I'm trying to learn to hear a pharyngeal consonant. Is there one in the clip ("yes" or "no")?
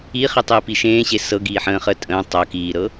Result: yes